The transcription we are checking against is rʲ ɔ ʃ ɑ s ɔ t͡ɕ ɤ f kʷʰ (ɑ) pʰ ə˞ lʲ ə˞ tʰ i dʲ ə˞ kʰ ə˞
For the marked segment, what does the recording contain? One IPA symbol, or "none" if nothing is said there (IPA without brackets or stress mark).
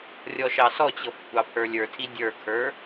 ɑ